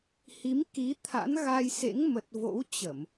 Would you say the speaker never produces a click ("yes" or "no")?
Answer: yes